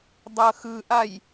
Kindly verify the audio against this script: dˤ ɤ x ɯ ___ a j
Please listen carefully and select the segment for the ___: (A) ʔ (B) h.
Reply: A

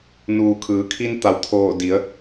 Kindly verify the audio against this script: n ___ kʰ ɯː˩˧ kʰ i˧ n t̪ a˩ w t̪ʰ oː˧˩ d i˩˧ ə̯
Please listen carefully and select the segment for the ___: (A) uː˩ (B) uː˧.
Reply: A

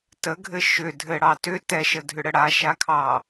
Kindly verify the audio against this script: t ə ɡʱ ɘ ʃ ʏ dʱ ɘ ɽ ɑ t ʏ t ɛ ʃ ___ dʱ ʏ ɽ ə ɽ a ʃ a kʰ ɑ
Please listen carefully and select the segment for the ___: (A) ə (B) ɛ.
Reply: A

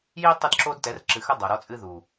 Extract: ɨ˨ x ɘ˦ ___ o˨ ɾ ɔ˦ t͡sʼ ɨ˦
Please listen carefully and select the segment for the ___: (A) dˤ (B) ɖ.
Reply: A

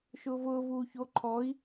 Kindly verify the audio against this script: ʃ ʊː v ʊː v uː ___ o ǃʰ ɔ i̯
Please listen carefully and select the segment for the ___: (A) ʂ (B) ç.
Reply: B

